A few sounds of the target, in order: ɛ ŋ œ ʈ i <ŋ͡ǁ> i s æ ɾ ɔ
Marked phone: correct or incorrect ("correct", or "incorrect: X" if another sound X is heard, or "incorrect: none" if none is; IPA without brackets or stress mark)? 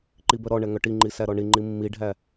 incorrect: ŋ͡ǃ